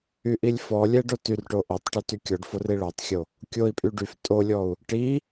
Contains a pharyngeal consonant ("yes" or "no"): no